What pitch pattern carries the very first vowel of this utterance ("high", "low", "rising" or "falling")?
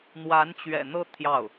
rising